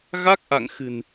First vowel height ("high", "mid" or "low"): low